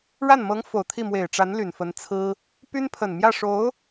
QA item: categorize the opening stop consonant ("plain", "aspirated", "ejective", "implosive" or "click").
aspirated